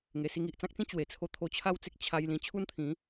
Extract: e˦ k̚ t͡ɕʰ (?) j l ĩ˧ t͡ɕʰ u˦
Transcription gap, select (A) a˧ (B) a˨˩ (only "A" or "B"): A